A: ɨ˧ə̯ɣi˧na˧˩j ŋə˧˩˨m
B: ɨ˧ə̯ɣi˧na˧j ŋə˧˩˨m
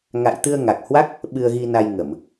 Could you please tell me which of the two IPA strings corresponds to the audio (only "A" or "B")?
B